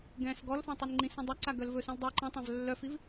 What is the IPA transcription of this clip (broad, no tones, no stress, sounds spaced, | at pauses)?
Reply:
ɡ ɛ̃ s ɡ ɔ l f ẽ tˤ e n ŋ͡ǃ ĩ s ĩ dˤ œ ǀ a ɡ œ l v ɵ s ũ l dˤ u ǃ ɛ̃ tˤ ã v lː œ f i v